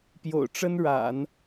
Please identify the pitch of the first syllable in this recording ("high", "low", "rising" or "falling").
low